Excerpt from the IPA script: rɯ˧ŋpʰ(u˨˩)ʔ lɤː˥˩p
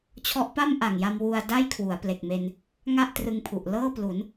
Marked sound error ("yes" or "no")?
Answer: no